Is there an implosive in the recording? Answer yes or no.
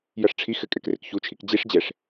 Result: no